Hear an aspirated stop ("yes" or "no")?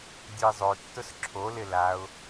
yes